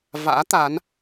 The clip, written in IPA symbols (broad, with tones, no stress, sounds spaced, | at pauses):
v a̰ː˧˥ t̪ a˨˦ n